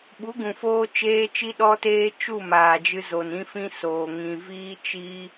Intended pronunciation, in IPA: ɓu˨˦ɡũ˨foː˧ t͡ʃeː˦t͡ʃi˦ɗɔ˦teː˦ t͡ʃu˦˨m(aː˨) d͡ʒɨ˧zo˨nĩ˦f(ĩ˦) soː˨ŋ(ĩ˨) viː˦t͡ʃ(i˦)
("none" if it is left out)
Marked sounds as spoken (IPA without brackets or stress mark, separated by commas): aː˨, ĩ˦, ĩ˨, i˦